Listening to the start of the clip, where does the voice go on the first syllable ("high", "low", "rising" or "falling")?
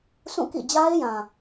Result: falling